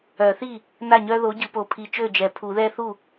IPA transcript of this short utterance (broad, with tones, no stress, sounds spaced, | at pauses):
œ˨˩˦ θ i˥˩ | n̪ a˥˩ ɲ œ˦ ð o˨˥ ɟ ɯ˨˩˦ p o˨˩˦ pʰ i˨˥ t͡ʃ ø˥˩ d͡ʒ ɛ˨˩˦ pʰ u˨˩˦ ð ɛ˦ θ u˥˩